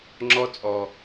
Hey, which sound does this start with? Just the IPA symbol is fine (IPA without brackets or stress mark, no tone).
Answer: ŋ͡ǁ